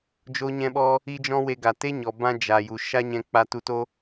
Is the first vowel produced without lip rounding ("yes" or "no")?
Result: no